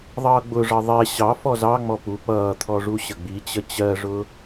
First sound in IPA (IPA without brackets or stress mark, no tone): ðˤ